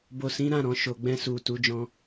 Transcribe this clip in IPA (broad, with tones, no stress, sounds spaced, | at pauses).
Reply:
b o˨ s ĩ˨˦ ɾ ã˦˨ ɾ ɔ̃˨ ʃ o˨ ɡ͡b ɛ̃˧ s u˨ t u˨˦ d͡ʒ ɔ̃˧